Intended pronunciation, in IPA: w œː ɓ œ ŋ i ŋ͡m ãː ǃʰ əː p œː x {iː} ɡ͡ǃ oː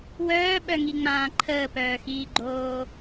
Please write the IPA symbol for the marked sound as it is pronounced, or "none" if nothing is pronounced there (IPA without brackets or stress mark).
iː